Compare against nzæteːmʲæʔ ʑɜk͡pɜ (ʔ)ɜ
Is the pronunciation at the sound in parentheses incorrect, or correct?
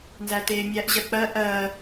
correct